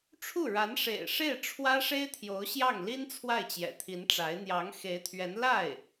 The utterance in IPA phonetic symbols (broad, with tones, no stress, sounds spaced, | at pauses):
ʈ͡ʂʰ u˥˩ ɻ a˧˥ n ʂ ḛ˨˩ ɪ̯ ʂ e˥˩ ɪ̯ ʈ͡ʂʰ w ä˥ ʂ e˥ ɪ̯ t̪ʰ j o˧˥ ʊ̯ ɕ j ɑ˥˩ ŋ l i˥ n t͡sʰ w a˥˩ ɪ̯ t͡ɕ j ɛ̰˨˩ t̪ʰ i˧˥ n ʈ͡ʂ a˧˥ ɪ̯ n̪ j ɑ˧˥ ŋ x e˧˥ ɪ̯ t̪ʰ ɥ ɛ˧˥ n l a˥˩ ɪ̯